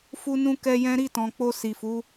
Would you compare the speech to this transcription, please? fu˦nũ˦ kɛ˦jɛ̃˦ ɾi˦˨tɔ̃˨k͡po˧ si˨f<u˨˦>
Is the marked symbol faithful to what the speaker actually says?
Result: yes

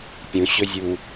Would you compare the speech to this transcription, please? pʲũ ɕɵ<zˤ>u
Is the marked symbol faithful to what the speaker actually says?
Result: no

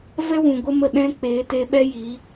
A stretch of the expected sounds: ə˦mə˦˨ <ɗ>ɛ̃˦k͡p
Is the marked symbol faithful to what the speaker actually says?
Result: yes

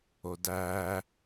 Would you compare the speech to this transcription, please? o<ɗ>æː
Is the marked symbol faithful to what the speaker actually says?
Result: no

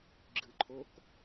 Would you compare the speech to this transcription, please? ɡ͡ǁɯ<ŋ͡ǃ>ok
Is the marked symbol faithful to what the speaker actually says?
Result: no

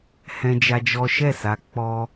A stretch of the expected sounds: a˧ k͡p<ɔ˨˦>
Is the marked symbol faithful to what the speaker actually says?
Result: no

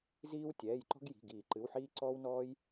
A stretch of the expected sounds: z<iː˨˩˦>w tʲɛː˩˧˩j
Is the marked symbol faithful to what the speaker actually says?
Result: no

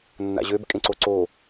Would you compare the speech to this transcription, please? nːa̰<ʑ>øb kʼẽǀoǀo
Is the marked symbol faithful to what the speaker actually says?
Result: yes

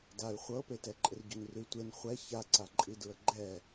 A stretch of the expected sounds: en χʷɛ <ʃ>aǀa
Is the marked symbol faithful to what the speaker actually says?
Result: no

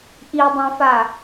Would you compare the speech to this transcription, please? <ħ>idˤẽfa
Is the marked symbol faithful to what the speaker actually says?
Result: no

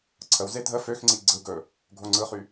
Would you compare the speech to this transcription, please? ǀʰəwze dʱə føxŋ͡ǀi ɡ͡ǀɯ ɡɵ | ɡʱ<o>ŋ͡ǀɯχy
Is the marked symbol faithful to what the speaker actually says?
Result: yes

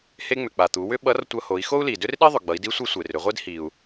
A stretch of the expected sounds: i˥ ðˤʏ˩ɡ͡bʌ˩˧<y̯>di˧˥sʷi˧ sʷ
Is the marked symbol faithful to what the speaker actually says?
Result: no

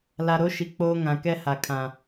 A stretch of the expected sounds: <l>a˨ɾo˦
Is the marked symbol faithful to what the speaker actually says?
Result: yes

